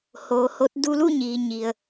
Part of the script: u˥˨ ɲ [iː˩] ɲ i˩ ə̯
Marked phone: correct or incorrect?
correct